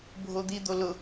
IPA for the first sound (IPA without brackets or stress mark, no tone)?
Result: bʱ